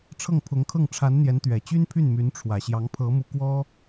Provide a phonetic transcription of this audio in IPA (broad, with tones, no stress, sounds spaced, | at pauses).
ʈ͡ʂʰ ɤ˥˩ ŋ pʰ ʊ˧˥ ŋ kʰ ɤ˥˩ ŋ ʈ͡ʂʰ a˧˥ n n̪ j ɛ˧˥ n t̪ ɥ ɛ˨˩ t͡ɕ y˥ n pʰ y˥˩ n m y˧˥ n ʈ͡ʂʰ w ä˨˩ ɕ j ɑ˧˥ ŋ pʰ ɤ˧˥ m u˧˥ k w ɔ˥